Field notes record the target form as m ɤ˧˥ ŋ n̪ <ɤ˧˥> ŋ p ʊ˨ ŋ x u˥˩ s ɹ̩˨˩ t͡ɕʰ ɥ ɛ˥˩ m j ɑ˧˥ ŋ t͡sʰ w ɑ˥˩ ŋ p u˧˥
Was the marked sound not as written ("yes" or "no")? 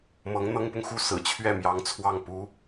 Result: yes